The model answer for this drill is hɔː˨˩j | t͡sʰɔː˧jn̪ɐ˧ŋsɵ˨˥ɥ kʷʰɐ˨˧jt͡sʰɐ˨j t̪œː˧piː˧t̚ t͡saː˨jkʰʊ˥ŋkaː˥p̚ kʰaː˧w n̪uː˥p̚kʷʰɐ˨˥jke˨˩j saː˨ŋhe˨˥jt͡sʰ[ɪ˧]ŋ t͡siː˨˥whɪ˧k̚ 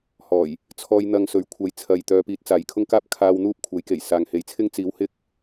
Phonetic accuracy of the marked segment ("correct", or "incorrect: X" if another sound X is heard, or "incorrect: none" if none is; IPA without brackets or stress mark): incorrect: ɪ˥